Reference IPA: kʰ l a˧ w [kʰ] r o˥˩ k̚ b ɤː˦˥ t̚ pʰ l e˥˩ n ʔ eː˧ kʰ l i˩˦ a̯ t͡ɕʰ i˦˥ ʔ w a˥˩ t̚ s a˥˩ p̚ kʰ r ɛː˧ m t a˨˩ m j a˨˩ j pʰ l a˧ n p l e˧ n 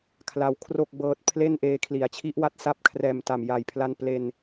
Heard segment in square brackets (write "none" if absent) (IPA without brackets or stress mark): kʰ